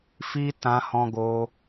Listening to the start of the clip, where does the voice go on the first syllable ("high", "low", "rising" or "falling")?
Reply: high